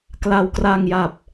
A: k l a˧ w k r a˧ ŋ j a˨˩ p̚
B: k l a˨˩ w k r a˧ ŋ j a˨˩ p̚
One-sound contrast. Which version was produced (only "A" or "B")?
A